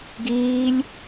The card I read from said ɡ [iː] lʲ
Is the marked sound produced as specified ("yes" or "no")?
yes